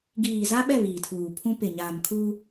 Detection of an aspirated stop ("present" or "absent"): present